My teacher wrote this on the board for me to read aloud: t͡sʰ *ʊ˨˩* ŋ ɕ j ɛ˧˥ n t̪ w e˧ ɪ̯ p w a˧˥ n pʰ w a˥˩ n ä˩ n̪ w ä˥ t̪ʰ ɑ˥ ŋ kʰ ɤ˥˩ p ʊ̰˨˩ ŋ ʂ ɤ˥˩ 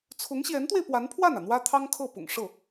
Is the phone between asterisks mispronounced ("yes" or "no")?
yes